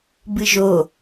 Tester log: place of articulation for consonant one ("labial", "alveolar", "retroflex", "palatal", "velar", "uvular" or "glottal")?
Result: labial